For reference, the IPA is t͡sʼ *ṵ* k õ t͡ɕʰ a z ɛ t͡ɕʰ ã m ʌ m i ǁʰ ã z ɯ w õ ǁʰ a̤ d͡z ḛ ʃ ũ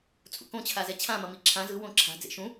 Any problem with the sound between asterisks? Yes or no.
no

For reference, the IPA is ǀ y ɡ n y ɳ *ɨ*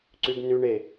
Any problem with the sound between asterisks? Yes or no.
yes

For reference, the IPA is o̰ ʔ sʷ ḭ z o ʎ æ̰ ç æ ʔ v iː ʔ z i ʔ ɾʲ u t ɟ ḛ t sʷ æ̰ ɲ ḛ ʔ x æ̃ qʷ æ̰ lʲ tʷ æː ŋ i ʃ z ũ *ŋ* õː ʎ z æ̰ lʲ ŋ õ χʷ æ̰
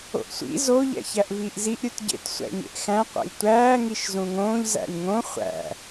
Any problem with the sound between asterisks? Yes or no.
no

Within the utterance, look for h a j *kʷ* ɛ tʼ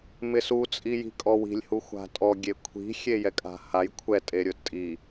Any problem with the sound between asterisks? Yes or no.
yes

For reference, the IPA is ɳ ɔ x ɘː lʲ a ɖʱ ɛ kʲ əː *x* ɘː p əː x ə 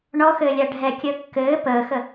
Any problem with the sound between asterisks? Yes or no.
yes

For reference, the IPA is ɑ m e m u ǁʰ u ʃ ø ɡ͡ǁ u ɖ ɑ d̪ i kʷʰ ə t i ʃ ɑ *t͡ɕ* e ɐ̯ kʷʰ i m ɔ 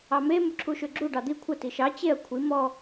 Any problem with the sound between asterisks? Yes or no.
no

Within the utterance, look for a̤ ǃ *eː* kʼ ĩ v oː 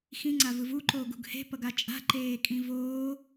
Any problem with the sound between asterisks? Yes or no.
no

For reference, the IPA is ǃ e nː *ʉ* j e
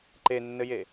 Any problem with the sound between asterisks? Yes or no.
yes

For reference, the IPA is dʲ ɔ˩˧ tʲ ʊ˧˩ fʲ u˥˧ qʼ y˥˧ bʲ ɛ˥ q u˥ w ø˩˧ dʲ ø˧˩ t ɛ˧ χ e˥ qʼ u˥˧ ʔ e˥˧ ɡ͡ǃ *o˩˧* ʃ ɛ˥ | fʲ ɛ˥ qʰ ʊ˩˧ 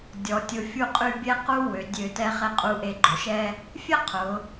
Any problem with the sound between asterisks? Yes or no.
no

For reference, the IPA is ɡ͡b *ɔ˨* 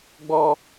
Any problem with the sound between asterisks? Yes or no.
yes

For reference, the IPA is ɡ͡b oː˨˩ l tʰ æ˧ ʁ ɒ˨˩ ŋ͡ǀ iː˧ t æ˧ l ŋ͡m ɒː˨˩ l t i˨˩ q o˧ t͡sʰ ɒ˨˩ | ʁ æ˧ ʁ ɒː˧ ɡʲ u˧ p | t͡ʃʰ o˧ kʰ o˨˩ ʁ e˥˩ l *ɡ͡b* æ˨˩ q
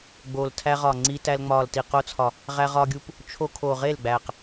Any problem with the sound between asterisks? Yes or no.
no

